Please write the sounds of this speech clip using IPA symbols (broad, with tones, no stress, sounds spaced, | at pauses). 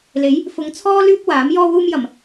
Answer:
l e˨˥ j | f ʊ˨˧ ŋ t͡sʰ ɔː˥ l yː˥ p̚ w aː˨˥ m j ɔː˥ w uː˥ m j ɐ˨˩ m